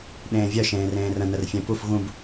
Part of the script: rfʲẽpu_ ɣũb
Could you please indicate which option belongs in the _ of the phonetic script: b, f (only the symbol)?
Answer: f